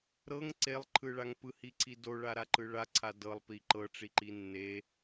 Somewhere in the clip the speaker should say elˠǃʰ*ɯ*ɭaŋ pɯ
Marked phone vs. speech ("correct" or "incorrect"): correct